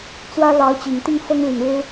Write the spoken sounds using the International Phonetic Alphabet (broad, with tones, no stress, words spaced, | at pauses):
t͡swä˥ lɑ˧˥ʊ̯ t͡ɕi˨˩ŋ t̪i˥˩ŋfɤ˥ŋ li˨˩ŋɻɻ̩˥